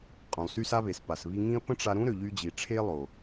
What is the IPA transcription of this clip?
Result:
qʼũ˨lˠsy˦sa˦βe˨s pa˨s βi˧ŋĩ˦ə̯ pə̃˦ʈ͡ʂa˧ɾũ˦ ɾø˨ʎy˧d͡ʑi˨ʈ͡ʂʰe˦ lˠo˨

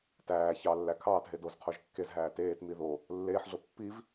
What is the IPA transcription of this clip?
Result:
tæː çɑlːæ kʰɑːtɦe doz qʰoʒkːezɦæː teːtmi ðo | lːeːħɮo pːiv

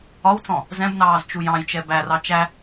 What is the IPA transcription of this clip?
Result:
ɒwt͡sɔ̃ | zɛ̃bnɑːz t͡ʃujɑ̃jt͡ʃɛ bærɑ t͡ʃæ

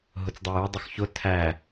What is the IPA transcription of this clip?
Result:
ɦʊt͡sdˤʌju dˤʊxçʊ tʰæ

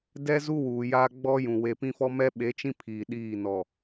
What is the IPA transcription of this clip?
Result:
dɛ˦ zu˦wuː˨ jaː˦ ɡ͡bɔ˦jũ˨ we˨pĩ˦fɔ˦ mɛ˦ɓe˨˦t͡ʃĩ˦ pʰiː˨ɗiː˦˨nɔ˨

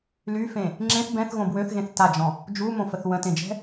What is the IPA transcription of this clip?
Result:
lyfẽ | ŋ͡ǁẽθ bɛ̃θɣõ bwøθɣẽθ tad͡ʒɔ̃ | d͡ʒumõfəθ wə̃tẽd͡ʒɛ̤

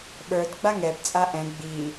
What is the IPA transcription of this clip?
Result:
ɓə˞d ɡ͡baŋɛbt͡sʼa ʔɛ̃ ɡ͡bi

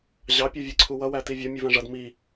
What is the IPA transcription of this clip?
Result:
ʑɑ pʲuvʲɜǀʰuwʌ wætivʲʌ mʲuvæ̃ʐʌd mi

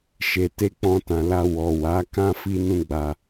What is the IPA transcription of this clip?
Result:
ʃe˨te˧ k͡pɔ̃˧tã˨la˧ wɔ˨ wa˨˦kã˦ fi˦nũ˦ ɡ͡ba˧

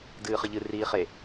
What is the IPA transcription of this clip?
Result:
dɨːχɨʎɨ riːχe

